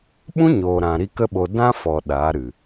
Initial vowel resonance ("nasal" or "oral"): nasal